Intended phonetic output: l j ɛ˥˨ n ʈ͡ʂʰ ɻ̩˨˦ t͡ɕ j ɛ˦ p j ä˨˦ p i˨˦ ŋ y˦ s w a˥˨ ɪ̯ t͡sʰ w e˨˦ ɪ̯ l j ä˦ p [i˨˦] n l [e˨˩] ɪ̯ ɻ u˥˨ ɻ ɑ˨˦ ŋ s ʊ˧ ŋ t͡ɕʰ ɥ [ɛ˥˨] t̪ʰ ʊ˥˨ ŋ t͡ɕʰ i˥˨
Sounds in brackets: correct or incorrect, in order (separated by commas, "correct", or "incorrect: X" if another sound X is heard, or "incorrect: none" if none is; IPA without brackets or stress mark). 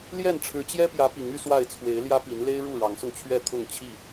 correct, incorrect: e˦, correct